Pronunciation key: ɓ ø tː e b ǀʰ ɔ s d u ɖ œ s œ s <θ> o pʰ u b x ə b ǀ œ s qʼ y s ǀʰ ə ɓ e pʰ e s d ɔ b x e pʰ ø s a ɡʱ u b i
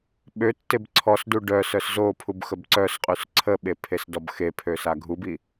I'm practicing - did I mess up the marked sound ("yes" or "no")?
yes